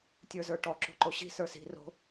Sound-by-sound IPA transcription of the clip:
tʲ ə˞ z ə˞ ʈ ɔ ǁ o̤ ǃ o ɕ i̤ s ə˞ s i̤ r o̤

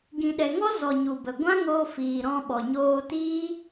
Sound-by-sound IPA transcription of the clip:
ɡ ĩ˨ ɗ ɛ˨ ŋ ɔ˦ z ɔ˨ ɲ u˨ b ə˨ ɡʷ ã˦ ŋ oː˧ f iː˨ ɾ ɔ̃˧ ɓ ɔ˨ ɲ oː˧ t iː˦

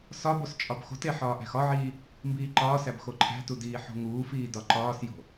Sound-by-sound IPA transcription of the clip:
s ɒ b o s t͡ʃʼ ɒ b x o̤ t e ħ ɒː ʔ æ̤ x ɒ ʕ iː | m b iː ǃ ɒː s æ b x o ǃʰ æ̤ t u d iː ħ o̤ ŋ uː f iː d ɒ ǃ ɒː s j o̤

